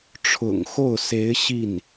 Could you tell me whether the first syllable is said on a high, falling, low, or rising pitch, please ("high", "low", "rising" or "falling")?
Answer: low